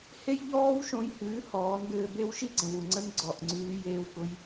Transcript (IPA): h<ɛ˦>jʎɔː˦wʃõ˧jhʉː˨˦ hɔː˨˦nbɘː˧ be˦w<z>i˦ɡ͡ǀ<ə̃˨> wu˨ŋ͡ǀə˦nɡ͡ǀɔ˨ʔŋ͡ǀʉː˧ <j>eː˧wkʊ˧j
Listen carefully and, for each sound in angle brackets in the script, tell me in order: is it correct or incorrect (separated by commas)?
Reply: incorrect, incorrect, correct, correct